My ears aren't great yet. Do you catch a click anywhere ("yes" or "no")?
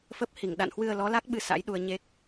no